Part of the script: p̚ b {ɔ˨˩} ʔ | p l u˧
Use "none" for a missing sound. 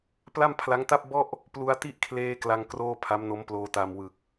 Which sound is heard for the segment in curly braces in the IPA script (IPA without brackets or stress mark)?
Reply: ɔ˥˩